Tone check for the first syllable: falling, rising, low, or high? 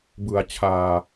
low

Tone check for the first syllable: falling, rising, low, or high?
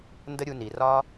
high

